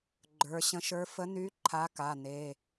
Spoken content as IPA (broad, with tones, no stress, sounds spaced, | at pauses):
ɡ͡ǃ ə˞˩˧˩ ɕ ə̃˧˥ ʃ ə˞˧˥ f ə˧˥ n y˧˥ ǃʰ a˧˥ k a˩˧˩ n e˩˧˩